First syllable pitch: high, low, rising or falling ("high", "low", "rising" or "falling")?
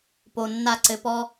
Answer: low